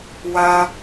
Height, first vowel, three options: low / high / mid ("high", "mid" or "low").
low